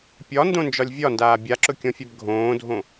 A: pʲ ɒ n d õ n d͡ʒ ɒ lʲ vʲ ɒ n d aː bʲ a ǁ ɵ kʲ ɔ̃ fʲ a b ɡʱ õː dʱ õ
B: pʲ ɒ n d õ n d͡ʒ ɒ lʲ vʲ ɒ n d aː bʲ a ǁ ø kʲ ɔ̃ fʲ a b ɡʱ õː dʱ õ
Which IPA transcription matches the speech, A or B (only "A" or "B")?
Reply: A